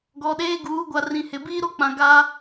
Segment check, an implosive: present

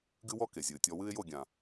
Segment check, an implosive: absent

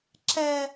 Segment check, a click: present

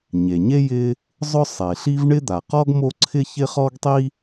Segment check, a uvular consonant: present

